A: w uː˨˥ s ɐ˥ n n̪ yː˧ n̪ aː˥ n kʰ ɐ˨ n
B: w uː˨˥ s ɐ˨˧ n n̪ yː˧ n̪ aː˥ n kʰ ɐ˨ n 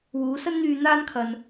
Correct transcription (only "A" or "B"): A